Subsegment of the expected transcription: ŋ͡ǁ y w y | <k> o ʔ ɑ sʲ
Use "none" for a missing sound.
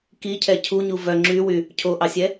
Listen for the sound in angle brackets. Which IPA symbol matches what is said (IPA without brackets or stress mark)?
cʰ